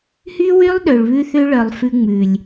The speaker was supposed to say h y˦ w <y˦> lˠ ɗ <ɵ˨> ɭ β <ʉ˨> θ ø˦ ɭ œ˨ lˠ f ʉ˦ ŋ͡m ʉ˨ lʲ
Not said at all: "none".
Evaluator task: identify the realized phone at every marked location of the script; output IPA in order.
y˦, ø˨, ʉ˦

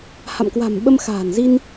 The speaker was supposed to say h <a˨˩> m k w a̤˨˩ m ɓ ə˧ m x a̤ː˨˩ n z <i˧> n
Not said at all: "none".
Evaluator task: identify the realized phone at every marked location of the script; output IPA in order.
a̰˧˨, i˧

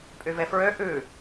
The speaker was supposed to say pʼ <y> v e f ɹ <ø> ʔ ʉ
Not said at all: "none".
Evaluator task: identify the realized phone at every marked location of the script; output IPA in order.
y, ø

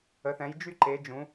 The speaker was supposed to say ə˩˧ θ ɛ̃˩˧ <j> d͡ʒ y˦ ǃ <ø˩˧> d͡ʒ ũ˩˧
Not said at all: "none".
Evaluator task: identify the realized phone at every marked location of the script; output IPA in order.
j, e˩˧

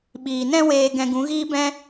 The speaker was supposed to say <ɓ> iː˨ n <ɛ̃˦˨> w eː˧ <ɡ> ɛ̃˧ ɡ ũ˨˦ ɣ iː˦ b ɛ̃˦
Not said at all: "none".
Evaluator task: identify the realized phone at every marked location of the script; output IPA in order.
ɓ, ɛ̃˦, ɡ

